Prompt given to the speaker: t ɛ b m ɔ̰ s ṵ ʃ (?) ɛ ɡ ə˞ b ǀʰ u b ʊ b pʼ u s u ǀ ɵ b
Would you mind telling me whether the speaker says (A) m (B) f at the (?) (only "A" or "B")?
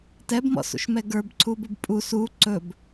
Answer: A